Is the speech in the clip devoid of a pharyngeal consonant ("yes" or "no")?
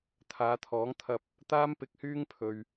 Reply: yes